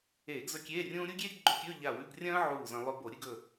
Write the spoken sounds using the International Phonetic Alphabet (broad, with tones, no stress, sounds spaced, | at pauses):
eː˧˩˧ ɡ z ɵ˧˥˧ kʲ eː˧˥˧ rʲ ũː˥ ɾʲ u˥ ɡʲ eː˥ ɡ ɡ͡ǃ ɵ˧˥˧ kʲ ɵː˧˥˧ ʎ a˧˩ w ʉ˧˥˧ ɡ rʲ ɐ̃ː˥ ʕ uː˧˩ z ɐ̃˧ lˠ ɵ˧ b o˧˩˧ ɾʲ ɨ˥˧ ɡ ɵ˧˩